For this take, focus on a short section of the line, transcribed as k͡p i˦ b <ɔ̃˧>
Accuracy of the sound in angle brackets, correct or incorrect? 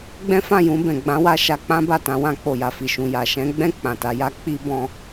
correct